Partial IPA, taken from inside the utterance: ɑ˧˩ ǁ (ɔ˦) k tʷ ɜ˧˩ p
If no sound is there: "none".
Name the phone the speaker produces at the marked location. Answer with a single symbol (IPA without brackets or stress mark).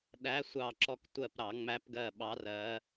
ɔ˨˦